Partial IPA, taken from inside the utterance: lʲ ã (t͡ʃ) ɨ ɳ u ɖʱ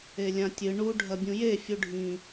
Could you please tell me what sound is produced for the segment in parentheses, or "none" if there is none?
tʲ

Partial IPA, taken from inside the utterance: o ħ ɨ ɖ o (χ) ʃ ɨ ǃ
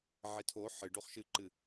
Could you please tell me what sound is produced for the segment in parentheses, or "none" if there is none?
χ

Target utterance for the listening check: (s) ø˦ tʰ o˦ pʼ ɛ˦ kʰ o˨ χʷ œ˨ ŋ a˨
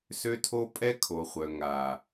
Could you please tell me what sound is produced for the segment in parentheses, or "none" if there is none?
s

